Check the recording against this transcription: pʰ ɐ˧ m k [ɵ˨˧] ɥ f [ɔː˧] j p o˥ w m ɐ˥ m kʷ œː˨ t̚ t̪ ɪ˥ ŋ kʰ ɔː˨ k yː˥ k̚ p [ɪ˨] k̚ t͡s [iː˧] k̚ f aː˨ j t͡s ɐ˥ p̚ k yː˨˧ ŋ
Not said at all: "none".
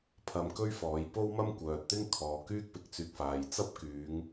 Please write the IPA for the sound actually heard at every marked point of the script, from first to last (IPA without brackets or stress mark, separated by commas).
ɵ˥, ɔː˨˧, ɪ˨˥, yː˧